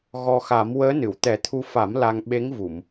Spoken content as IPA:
ɣ ɔ˧ x a˨˩˦ m w əː˧˥ n ɨ˨˩˨ w t̪ ɛ˨˩˦ t̪ʰ u˧ f a˨˩˦ m l a˧ ŋ ɓ e˧˥ ŋ v u˨˩˨ m

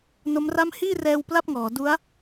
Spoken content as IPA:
n o˦˥ m r a˥˩ m h iː˥˩ r ɛː˧ w p l a˥˩ p̚ ŋ ɔː˩˦ d u˦˥ a̯

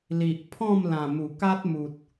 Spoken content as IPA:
l i˨ ʔ pʰ ɔ̃˥˧ m l ã˨˩ m u˨˩ k a˦ t̚ m u˨ t̚

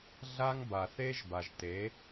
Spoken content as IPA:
ɮ a˦ ŋ b a˨ θ e˦ ʒ b a˨ ʒ t e˨˦

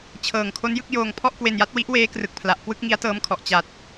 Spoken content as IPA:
t͡ɕʰ ɤː˨˩ ŋ kʰ o˦˥ n j ɯ˥˩ k̚ j oː˧ ŋ pʰ ɔ˥˩ ʔ k w e˧ n j a˦˥ t̚ w i˦˥ ʔ w eː˦˥ k r ɯ˨˩ k̚ pʰ l a˨˩ ʔ k w ɯ˥˩ k̚ ŋ i˦˥ a̯ t ɤː˦˥ m kʰ ɔ˨˩ ʔ t͡ɕ a˨˩ t̚

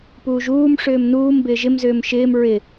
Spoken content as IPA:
p uː ʒ uː m ʂ ʏː m n uː m b ɪː ʒ ɪ m z ʏː m ʃ ɪː m ɹ ɪ

